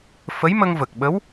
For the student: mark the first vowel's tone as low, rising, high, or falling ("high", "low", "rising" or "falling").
rising